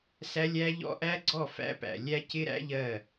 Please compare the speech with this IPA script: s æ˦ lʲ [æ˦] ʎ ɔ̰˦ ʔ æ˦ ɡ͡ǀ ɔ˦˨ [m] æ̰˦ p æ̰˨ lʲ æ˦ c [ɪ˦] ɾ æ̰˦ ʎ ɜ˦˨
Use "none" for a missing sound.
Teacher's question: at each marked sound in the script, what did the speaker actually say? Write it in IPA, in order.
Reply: æ˦, f, ɪ˦

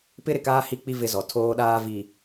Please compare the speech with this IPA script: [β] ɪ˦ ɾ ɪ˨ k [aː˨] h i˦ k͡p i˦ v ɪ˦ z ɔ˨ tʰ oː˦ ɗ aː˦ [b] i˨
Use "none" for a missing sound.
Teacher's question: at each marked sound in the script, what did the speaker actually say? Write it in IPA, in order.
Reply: p, aː˦, v

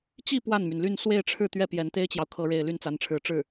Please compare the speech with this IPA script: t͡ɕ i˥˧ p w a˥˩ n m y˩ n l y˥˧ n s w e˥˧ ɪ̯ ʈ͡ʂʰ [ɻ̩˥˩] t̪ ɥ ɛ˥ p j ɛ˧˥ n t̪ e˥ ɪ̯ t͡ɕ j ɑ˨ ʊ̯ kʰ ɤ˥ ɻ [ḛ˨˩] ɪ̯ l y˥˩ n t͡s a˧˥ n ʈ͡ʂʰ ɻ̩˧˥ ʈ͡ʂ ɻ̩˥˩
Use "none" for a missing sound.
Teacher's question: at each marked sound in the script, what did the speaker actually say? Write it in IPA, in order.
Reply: ɻ̩˥˩, e˥˧

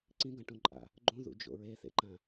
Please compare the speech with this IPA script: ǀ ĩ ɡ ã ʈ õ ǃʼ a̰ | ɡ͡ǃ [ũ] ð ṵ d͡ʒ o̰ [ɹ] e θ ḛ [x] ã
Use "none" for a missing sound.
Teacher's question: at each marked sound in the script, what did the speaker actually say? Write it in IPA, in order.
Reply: ũ, ɹ, ǃ

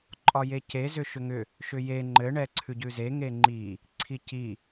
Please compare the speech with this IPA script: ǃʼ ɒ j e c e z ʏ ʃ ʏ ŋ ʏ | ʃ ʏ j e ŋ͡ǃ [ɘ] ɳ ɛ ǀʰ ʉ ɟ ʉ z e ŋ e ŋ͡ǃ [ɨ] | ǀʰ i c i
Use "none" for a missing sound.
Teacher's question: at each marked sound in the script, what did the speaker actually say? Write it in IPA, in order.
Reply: ɘ, i

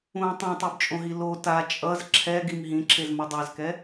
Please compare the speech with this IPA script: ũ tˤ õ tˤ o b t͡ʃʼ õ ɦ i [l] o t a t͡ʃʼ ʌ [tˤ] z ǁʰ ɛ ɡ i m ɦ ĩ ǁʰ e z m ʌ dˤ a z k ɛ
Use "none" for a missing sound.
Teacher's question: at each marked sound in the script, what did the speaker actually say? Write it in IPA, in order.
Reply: l, none

